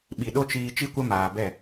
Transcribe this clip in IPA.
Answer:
ɓ i˨ ɗ o˦ t͡ʃ iː˧ t͡ʃ i˦ kʷ ə˦ m aː˨ b ɛ˦˨

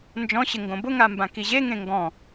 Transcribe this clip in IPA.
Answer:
n d͡ʒ ɔ̃ ɕ ɪ ŋ ɡ õ b ʊ ŋ a m b ã k i ʑ e ŋ ẽ ŋ ɡ ɔ̃

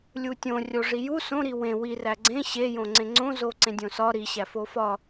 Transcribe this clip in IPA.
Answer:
lʲ u tʲ õ rʲ o ʐ i j u s õ ɾ i w ẽ w i r æ ɡ͡ǀ ẽ ɕ e j õ ŋ͡ǀ ẽ ŋ͡ǀ õ z o ǀ ẽ dʲ õ s ɒ ɾ i ɕ æ f o f ɒ

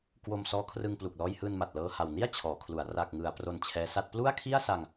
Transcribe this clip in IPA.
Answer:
k w o˧ m s ɔː˦˥ kʰ r ɯ˧ ŋ p l u˨˩ k̚ l ɔː˧ j h ɯː˧ n m a˨˩ t̚ l ɤː˧ h a˨˩ w n i˥˩ a̯ t͡ɕʰ ɔː˩˦ kʰ l u˩˦ a̯ r a˨˩ k̚ ŋ ɯ˩˦ a̯ p r o˧ n t͡ɕʰ ɛː˦˥ s a˥˩ t̚ p l u˥˩ a̯ kʰ i˥˩ a̯ s a˧ ŋ

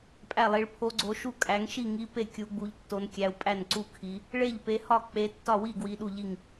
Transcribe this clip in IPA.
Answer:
pʼ æ˥˩ lˠ i˨˦ ɭ pʰ o˨˦ ɡ͡ǀ o˨˦ ʃ u˥˩ kʼ æ˨˦ ŋ ʃ i˥˩ ŋ i˨˦ p e˥˩ kʲ u˨˦ ɡ͡b u˨˦ ʎ tː o˨˦ n kʲ æ˨˦ u̯ pʼ æ˥˩ n ǀ u˥˩ kʰ i˨˦ | ɭ e˥˩ ʎ p e˨˦ h ɒ˥˩ k͡p e˨˦ tː ɒ˥˩ w i˥˩ ɡ w i˨˦ ɗ u˥˩ ʎ i˥˩ ŋ

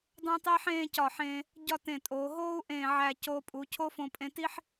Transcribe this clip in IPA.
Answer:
dˤ õ˥ tˤ e˥ ħ ẽː˥˧ c ɒ˧˩ ħ ẽː˧ | ɟ ɒ˥˧ t ẽ˧˩ tʼ oː˩˧ ɦ oː˥ u̯ ʔ ẽː˧˩ ʕ æ˧˩ c oː˧ pʼ u˩˧ cʰ o˥ f õ˧ pʼ ẽ˧ t i˥ ħ

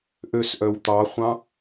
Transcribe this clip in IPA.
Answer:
ʔ ø s ʔ œ w t̪ ɑ χʷ ɑ̃

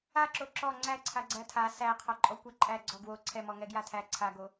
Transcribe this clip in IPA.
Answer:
a ǁ o ǁ ɔ ŋ͡ǀ æ ǀʰ a ɡ͡ǀ æ tʰ a s æ qʰ ɔ ǃʼ ɔ kʷ a ǃʼ æ ɡ͡ǀ ɔ ɡ w o ǀʰ ɛ m ɔ ŋ ɛ ɡ j a tʰ æ ǀʰ a ɡ o

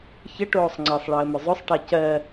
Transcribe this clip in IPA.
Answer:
ç ə ʈ oː sˤ ŋ͡ǀ ɨ sˤ ɭ əː m ʏ zˤ ʏ sˤ ʈ ɛ c ɜ

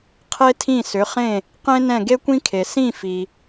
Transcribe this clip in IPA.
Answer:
qʰ e˥ tʰ ĩ˥˩ s ʏ˩˥ χ ẽ˥˩ | q ẽ˥ n ɛ̃˥˩ ɡ e˥ kʷ ĩ˥ kʰ e˩ s ĩ˥˩ f i˩

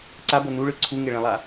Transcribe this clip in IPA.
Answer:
ǀ a b ɤ n u ɭ ɯ ǀʰ u ŋ e ɭ ẽ lˠ a

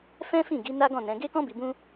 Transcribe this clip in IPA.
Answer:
f ɛ̃˦ f ĩ˦˨ ɡ i˨˦ n a˦ ɡ ɔ̃˦˨ n ɛ̃˨˦ ɡ e˦ k ɔ̃˦ b i˧ b ũ˦

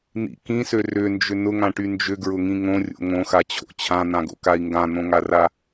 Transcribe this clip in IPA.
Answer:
n̪ ḭ k ĩ s ø r ʏ n d͡ʒ ʏ n ʊ ŋ ã ʈ y n d͡ʒ ʏ ɡ ɹ ʊ ŋ ĩ ŋ õ rʲ o̰ ŋ õ x a t͡ɕʰ o̰ t͡ɕʰ ã n̪ ã ɡ o̰ k a i̯ ŋ ɡ ã n̪ õ ŋ a r a

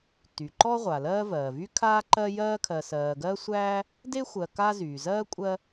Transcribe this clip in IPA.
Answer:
t y˩ ǃ ɔ˦ ʁʷ a˩ l ɜː˦ v ɜː˩ v y˥ kʰ aː˦ ǃ ɜ˦ j ɜː˦ kʰ ɜ˨ s ɜː˨ ɡ ɜ˥ sʷ æː˥ | d e˥ xʷ ɜ˨ k a˦ z yː˩ z ɜː˥ kʷʼ ɜ˦

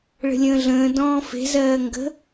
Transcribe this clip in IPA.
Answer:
ɭ ə̤ lʲ ə̃ː ɮ ə̃ː d ɔ̃ː f e̤ z ɜː ŋ ɡ ə̤

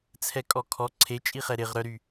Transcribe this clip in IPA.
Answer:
t͡sʰ ɛ kʼ ɔ kʰ ɔ ǀʰ e t͡ʃʼ i χ ɛ ɾ ɪ ʁ ɾ œ ɾ y

